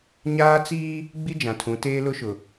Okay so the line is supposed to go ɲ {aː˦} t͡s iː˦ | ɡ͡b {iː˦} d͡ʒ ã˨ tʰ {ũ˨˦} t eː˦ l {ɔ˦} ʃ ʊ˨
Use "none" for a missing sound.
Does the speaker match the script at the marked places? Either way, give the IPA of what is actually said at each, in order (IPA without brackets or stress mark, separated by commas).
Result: aː˦, i˦, ũ˨˦, ʊ˦